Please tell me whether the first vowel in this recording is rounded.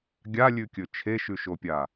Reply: no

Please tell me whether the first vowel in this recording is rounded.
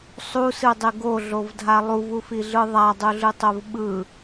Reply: yes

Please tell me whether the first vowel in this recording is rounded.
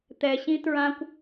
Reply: no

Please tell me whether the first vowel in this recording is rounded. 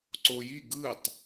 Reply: yes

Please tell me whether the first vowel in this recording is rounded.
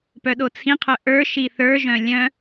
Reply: yes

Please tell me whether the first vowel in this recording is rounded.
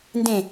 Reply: no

